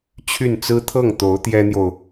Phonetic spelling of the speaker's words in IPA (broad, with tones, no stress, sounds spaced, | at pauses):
t͡ɕʰ y˥˩ n t͡s ɹ̩˥ t̪ʰ ɤ˥˩ ŋ t̪ o˧˥ ʊ̯ t̪ j ɛ˥ n̪ j o˨ ʊ̯